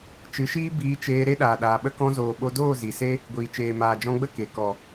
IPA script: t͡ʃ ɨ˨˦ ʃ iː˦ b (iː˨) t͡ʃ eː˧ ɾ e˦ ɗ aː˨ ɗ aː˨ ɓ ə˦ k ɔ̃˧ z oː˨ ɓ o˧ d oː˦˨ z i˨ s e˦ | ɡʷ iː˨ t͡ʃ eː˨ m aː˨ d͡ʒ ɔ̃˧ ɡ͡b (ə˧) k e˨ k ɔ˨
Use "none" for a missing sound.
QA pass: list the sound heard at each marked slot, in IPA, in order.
iː˧, ə˦

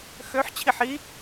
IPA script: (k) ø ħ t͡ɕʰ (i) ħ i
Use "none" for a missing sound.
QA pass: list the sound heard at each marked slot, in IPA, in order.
x, i

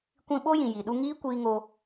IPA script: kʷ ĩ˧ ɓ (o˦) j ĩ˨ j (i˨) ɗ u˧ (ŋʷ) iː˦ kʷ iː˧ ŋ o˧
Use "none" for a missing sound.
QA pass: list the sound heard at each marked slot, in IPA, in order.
o˦, i˨, ŋ

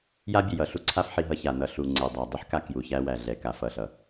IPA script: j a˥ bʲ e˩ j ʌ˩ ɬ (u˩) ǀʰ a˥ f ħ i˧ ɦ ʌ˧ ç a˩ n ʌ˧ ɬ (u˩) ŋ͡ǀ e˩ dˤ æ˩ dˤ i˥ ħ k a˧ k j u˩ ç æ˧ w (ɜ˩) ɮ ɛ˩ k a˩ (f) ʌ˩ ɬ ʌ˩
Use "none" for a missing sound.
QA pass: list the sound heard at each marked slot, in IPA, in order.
u˥, u˩, æ˩, f

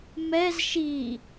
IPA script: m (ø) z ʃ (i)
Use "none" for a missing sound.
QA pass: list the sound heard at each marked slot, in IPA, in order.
ɛ, i

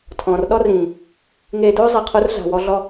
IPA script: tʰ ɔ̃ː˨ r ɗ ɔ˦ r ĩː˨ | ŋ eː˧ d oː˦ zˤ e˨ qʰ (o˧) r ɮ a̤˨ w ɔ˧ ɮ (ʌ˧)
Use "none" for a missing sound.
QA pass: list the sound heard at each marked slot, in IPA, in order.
o˧, ɔ˧

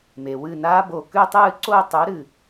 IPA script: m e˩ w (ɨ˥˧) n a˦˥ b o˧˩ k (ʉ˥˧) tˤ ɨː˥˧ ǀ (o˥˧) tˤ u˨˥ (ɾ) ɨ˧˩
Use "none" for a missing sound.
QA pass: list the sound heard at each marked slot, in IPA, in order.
ɨ˧˩, ʉ˥˧, o˥˧, ɾ

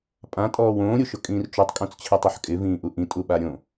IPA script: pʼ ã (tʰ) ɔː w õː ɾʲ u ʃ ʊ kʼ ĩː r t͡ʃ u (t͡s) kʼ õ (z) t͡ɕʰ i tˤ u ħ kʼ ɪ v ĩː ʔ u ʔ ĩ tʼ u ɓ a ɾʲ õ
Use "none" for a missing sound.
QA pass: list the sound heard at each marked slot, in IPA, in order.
tʼ, tˤ, t͡s

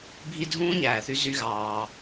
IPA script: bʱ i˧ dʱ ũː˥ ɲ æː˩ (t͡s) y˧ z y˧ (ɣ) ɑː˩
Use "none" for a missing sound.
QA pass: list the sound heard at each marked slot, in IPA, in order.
θ, ɣ

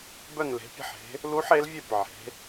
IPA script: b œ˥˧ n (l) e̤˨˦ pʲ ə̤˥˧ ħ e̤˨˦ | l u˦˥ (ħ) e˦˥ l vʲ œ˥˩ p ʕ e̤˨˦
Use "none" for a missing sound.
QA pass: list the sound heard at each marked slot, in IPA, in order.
l, ħ

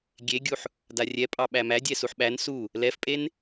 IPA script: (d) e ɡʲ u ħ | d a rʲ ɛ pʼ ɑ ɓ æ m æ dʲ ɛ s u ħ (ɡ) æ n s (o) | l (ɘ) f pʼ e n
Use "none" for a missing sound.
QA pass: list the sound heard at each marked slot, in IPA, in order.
ɡʲ, ɓ, u, ɛ

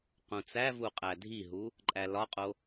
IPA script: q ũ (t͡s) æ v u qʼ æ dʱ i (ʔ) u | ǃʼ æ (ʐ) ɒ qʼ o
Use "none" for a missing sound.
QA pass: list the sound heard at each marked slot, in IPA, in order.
t͡s, ɦ, l

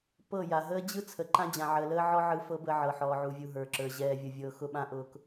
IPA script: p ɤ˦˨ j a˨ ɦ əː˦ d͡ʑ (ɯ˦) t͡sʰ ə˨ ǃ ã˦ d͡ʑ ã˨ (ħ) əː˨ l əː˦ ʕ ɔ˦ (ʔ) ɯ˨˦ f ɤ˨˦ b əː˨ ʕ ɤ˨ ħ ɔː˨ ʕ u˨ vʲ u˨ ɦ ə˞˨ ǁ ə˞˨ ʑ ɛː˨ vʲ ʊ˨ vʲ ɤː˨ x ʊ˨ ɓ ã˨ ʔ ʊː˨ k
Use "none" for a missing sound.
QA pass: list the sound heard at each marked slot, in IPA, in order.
ɯ˦, ʕ, ʕ

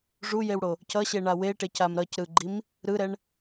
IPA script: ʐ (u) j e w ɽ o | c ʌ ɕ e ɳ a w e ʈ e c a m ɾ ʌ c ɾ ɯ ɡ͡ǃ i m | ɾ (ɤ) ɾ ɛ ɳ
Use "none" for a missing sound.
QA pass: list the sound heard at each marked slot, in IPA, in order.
u, ɯ

